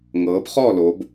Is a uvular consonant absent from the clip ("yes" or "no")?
no